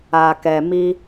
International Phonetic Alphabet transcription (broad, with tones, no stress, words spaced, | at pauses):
a˨kɛ˨ mi˧